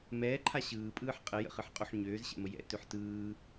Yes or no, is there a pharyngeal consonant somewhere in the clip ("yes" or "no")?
yes